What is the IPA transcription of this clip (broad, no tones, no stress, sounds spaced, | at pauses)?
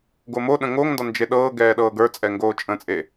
ɡ o m o ɗ ə̃ ŋ o ŋ n d ɒ n d͡ʒ e ɗ ɤː ɡ ɛː ɗ ɤː ɡ ə˞ t͡sʼ ɛ ŋ ɡ oː t͡ʃʼ ə̃ t͡sʼ e